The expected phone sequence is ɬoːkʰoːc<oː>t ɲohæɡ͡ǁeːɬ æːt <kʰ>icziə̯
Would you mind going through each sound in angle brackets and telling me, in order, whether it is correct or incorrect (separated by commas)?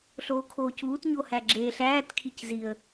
incorrect, correct